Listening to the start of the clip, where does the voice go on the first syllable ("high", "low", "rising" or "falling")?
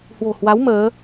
low